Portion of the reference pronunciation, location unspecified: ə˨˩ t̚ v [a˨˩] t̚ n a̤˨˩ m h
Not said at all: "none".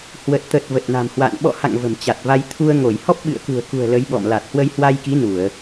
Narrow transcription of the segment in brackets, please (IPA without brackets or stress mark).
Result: ə˨˩